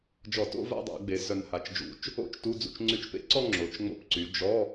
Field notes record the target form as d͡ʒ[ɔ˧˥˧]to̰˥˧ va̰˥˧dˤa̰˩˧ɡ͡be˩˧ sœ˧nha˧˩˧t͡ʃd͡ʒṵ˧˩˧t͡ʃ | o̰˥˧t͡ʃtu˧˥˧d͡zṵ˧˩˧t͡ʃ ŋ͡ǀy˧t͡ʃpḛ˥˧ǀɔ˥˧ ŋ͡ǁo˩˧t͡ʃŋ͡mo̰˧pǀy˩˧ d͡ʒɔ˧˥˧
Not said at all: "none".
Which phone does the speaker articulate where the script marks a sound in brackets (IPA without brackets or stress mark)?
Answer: ɔ˧˩˧